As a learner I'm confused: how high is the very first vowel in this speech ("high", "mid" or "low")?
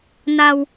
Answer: low